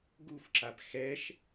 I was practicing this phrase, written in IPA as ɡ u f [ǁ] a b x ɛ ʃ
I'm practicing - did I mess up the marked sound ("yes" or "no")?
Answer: no